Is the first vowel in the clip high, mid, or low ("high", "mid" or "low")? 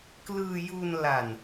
high